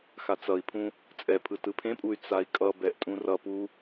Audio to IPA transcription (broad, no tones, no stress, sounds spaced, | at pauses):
x a t͡s ʌ i̯ pʰ ũ | t͡sʼ ɛ pʰ ɯ t ɯ pʰ ẽ pʼ u y̯ t͡s a i̯ kʼ ʌ b ɛ ʔ tʼ ũ r ʌ p u